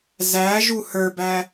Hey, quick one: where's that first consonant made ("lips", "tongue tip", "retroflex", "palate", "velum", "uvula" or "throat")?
tongue tip